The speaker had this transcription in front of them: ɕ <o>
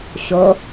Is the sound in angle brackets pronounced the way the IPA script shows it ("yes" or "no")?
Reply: yes